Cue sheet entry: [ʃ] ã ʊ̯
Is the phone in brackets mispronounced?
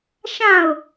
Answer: no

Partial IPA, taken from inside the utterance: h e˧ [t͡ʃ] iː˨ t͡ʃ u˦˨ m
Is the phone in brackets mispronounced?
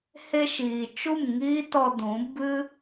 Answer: yes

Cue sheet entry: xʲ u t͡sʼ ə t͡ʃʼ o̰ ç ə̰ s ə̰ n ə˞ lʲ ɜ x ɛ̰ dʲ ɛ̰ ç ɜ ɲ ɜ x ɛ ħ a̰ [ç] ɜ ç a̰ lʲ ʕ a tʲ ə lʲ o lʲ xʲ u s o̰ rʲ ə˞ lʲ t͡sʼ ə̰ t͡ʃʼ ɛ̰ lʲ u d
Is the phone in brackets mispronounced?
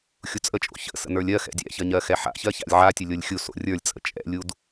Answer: no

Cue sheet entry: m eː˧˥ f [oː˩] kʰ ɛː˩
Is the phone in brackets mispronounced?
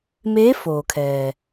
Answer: no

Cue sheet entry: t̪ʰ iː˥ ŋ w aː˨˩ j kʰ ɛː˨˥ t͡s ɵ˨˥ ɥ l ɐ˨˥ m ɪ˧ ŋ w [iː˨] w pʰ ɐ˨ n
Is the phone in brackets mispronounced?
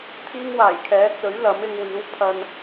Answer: yes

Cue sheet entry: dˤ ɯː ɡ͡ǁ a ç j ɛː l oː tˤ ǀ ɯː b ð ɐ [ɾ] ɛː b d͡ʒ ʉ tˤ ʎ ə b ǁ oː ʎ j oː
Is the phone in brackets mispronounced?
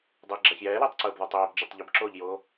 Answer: yes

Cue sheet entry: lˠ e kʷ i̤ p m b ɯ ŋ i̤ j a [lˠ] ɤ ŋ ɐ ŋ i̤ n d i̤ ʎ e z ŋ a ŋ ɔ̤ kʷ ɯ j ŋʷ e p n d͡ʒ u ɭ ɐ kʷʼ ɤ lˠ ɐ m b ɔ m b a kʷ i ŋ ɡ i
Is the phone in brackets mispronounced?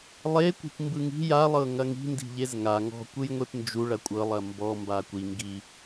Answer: no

